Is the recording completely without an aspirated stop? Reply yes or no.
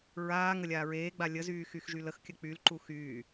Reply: yes